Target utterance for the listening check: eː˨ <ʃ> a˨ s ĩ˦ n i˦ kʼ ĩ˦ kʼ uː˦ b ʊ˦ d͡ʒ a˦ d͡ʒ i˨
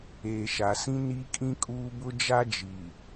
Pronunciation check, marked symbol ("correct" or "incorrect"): correct